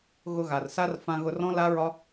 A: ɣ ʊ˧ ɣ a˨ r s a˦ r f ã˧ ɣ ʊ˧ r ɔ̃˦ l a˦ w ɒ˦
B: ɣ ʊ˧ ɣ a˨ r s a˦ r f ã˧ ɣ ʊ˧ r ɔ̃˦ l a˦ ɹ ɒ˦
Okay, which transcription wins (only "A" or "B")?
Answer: B